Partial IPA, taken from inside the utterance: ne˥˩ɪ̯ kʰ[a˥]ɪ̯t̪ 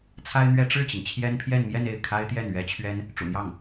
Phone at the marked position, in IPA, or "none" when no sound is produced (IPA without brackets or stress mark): a˥